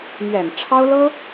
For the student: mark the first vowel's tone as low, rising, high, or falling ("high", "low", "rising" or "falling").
low